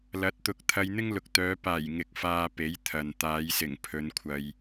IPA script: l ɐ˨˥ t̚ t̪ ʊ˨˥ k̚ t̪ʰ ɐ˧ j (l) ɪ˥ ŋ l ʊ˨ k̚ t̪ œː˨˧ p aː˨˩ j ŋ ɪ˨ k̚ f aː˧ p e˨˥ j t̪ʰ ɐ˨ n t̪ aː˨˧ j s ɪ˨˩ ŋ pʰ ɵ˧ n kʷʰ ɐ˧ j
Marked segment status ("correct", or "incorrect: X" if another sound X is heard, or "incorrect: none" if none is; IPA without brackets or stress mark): incorrect: n̪